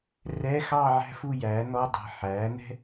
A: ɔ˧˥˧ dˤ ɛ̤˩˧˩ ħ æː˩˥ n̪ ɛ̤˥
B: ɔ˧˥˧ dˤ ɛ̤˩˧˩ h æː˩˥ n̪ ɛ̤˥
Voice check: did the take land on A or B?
A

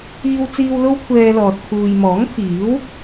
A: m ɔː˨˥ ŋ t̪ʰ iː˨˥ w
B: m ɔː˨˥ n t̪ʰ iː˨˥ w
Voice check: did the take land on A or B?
A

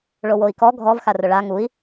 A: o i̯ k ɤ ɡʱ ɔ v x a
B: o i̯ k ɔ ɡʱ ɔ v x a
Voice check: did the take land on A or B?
B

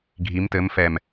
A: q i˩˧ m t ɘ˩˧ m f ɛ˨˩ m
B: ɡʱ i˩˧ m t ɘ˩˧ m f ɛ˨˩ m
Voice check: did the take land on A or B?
B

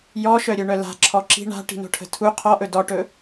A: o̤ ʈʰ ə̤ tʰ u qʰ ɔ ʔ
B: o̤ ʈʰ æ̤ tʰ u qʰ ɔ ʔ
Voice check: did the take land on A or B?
A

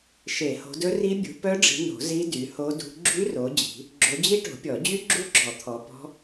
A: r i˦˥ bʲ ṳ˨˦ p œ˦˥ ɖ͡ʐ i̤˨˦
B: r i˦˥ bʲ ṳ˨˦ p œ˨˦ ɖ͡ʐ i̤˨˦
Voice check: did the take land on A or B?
A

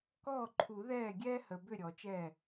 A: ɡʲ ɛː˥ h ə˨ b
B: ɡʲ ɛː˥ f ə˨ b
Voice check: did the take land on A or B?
A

